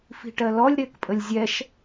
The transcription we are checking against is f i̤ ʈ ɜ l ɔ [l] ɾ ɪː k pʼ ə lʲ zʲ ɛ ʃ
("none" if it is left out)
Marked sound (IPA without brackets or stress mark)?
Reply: lʲ